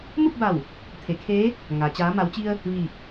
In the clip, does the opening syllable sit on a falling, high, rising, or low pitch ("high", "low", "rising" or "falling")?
falling